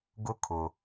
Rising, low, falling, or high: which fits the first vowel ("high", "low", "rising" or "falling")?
high